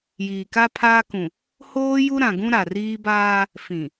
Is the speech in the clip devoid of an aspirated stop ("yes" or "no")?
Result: no